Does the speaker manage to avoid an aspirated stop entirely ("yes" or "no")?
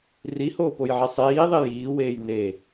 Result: yes